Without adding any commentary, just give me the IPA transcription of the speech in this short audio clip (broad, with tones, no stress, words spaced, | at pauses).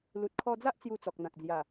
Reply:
lu˨t̚kʰɔ˧d͡za˦ʔ t͡sju˧t͡sɔ˨k̚n̪ã˨k̚d͡zja˨˩